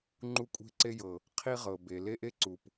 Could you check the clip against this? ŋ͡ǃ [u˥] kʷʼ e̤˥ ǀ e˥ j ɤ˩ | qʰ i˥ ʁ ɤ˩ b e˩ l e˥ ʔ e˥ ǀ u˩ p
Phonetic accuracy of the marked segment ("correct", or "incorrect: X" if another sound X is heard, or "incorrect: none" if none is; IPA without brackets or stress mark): correct